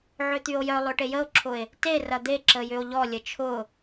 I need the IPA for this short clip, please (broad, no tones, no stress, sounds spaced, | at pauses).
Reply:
ʕ ø t̪ y o̯ j œ lˠ ø ʈ e j ə o̯ ǁʰ ʊ e̯ | t e r ɐ d̪ e ǁ ə j ʏ o̯ ʎ ɔ lʲ ə t͡ʃʰ ʊ